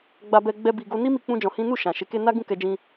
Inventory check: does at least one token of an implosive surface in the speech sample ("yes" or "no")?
no